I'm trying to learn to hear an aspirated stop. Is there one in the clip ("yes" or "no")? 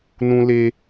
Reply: no